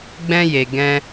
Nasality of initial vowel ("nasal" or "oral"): nasal